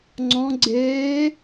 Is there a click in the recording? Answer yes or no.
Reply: yes